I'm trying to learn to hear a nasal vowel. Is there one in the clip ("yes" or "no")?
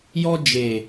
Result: no